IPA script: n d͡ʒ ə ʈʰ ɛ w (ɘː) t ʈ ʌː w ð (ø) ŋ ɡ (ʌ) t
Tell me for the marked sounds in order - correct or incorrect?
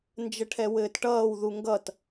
correct, incorrect: u, correct

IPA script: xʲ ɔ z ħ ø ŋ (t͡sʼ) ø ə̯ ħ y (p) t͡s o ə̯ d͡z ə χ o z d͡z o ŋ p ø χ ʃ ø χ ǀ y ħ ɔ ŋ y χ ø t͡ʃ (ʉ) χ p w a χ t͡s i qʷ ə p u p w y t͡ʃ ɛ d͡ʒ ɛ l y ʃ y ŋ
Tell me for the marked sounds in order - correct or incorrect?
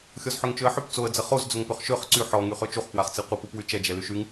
incorrect: t͡ʃ, correct, incorrect: u

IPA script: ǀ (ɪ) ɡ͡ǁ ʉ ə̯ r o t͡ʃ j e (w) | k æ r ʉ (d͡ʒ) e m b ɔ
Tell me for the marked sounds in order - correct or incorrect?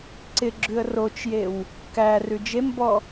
correct, correct, correct

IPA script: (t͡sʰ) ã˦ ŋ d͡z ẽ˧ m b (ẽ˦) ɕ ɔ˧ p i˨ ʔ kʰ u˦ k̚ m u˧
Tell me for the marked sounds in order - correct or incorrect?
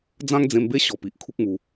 incorrect: d͡z, incorrect: e˦

